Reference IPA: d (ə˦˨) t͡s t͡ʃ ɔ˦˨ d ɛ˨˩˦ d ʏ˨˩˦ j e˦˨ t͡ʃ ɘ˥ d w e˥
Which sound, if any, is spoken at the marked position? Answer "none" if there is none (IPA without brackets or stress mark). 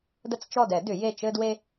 ə˦˨